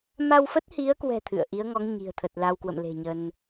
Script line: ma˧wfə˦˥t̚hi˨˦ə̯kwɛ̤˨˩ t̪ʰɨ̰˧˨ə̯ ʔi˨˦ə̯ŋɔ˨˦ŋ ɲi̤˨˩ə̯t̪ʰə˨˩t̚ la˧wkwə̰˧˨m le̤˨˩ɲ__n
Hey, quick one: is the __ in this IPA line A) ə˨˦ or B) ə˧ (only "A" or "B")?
B